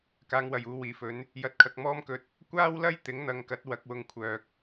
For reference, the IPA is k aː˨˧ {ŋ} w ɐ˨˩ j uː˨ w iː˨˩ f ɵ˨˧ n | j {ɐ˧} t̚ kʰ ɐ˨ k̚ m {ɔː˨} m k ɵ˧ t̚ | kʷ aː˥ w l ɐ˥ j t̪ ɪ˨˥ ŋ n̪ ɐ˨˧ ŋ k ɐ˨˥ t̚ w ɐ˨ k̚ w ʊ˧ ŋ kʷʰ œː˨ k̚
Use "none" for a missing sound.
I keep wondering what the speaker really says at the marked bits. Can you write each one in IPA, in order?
ŋ, ɐ˨˥, ɔː˥

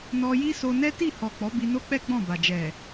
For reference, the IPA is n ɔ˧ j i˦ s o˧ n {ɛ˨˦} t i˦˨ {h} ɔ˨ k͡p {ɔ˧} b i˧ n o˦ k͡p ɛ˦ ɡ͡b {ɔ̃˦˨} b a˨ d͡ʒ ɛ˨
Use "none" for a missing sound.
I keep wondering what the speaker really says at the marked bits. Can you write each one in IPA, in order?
ɛ˦, h, ɔ˨˦, ɔ̃˦˨

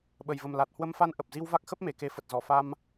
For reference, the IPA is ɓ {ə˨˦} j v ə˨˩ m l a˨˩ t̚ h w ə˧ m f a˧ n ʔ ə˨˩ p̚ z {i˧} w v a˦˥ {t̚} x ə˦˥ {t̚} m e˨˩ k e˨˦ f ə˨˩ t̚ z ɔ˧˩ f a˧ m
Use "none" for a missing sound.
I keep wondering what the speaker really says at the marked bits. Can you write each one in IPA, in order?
ə˨˩, i˧, k̚, p̚

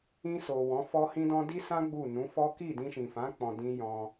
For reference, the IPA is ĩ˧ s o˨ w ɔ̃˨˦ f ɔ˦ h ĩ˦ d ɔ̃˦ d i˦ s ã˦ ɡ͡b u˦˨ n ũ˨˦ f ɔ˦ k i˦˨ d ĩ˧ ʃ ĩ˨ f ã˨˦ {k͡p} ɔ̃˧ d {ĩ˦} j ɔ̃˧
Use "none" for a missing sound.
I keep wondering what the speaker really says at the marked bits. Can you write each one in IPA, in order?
k͡p, ĩ˦

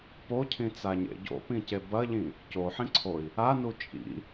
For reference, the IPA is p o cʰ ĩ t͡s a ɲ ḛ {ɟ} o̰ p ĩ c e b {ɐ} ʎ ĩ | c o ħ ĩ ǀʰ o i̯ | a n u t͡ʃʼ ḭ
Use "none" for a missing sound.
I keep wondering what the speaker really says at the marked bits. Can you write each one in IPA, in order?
ɟ, ɐ

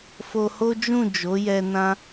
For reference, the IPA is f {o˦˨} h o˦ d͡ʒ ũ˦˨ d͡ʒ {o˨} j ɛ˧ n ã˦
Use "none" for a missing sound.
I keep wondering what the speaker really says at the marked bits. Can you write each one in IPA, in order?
o˧, o˨˦

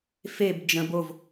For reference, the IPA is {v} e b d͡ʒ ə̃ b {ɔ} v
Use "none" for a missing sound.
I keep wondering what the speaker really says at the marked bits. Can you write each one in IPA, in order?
f, o

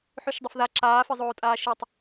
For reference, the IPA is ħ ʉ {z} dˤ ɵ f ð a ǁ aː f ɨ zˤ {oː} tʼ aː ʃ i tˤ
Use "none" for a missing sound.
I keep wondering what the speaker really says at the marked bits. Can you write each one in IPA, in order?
ʃ, oː

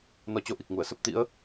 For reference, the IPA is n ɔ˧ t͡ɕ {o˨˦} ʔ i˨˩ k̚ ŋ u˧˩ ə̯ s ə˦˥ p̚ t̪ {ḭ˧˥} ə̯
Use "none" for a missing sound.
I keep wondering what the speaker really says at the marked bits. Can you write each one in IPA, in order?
o˨˦, ḭ˧˥

